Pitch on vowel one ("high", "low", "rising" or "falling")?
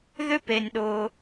high